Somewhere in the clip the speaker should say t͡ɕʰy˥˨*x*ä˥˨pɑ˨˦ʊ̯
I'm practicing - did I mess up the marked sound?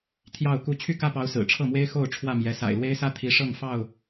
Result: yes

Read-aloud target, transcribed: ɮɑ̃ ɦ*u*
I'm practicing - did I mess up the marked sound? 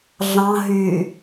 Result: yes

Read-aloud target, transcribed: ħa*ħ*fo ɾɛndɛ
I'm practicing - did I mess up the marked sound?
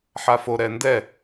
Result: yes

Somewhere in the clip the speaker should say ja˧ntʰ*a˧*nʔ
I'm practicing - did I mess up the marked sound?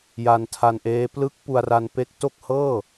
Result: no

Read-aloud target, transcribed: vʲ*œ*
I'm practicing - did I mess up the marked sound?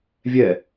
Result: yes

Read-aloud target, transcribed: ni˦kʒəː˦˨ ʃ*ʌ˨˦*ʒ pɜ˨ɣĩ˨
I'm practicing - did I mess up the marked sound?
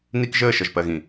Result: yes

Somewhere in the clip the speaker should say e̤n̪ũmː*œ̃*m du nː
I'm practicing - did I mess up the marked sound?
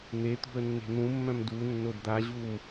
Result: no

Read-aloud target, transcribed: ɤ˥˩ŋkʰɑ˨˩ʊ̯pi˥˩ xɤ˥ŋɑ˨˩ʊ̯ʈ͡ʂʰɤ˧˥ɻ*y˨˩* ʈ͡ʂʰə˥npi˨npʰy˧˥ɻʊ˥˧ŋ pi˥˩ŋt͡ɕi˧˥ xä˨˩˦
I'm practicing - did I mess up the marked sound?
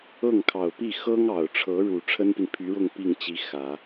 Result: yes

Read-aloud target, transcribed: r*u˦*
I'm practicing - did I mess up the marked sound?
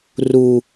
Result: no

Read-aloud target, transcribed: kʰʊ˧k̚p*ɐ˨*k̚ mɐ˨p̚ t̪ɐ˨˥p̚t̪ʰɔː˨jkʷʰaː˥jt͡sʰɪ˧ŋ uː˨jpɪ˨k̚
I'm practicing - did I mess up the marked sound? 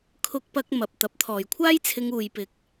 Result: yes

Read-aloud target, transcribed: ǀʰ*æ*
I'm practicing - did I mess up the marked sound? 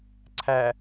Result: no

